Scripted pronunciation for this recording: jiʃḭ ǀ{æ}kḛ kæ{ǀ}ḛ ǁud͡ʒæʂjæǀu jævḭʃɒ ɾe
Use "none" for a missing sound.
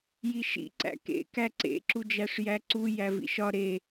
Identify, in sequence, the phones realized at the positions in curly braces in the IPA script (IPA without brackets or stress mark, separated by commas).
æ̰, ǀ